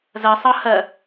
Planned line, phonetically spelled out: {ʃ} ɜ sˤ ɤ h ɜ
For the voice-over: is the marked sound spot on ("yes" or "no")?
no